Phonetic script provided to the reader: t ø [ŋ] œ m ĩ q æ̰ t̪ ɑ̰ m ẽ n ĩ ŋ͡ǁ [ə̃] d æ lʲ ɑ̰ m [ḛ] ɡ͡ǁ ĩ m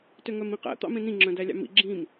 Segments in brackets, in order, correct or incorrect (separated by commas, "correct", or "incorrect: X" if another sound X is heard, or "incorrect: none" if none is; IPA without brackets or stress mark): correct, incorrect: œ̃, incorrect: ḭ